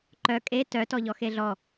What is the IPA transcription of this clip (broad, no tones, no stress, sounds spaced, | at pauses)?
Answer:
ǃ œ kʼ e t œ t ɔ ʎ ɔ x e ɮ ɔ